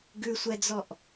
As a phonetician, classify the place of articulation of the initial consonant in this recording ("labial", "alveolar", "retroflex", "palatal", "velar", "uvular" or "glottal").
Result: velar